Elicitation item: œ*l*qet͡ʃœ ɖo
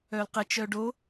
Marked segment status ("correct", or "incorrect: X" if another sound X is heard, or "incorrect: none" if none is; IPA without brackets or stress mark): correct